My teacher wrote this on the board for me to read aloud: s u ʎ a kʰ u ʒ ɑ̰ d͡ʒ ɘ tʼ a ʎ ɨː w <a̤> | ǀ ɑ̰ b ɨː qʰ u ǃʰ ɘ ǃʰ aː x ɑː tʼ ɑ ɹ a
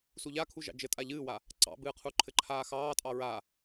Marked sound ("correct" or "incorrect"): incorrect